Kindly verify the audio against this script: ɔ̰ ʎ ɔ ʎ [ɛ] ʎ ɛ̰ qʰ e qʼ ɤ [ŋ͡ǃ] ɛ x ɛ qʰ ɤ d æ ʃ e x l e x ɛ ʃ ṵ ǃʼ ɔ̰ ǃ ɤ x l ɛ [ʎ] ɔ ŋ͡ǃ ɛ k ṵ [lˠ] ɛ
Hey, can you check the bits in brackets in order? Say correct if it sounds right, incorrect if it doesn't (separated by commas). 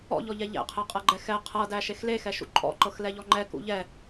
correct, incorrect, correct, incorrect